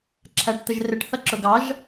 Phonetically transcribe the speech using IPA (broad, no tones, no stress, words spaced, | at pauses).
ǁʰæʈt̪əʒrɪʈ θʌǁʊɡɑʒ